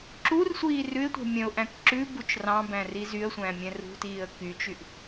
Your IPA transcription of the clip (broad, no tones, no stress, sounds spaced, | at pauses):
ǁ u r sʷ iː r ʉ ɪ̯ tʷ ɛ̤ mʲ œ̃ ʊ̯ ʔ æ̃ k ǁ ʉ b u t͡ʃ r ɑ̃ b æ̃ r i z y ə̯ sʷ æ̃ mʲ ɛ̃ r ṳ t iː ə̯ k y t͡ʃ y ʔ